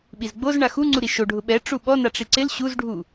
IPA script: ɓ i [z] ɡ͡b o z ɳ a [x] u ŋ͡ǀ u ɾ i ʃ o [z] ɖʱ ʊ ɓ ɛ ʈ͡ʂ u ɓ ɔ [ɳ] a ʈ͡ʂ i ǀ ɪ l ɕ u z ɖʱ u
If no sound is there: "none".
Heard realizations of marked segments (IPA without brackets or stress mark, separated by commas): z, x, none, n